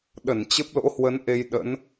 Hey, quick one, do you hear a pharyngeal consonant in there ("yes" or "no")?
no